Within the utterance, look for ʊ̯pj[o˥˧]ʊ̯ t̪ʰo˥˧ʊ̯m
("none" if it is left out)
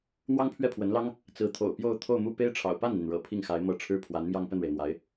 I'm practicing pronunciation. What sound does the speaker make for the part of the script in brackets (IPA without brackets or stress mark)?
o˥˧